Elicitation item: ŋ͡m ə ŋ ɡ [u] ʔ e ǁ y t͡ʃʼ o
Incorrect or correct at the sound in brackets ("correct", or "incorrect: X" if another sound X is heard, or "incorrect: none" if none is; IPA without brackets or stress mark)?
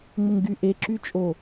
incorrect: y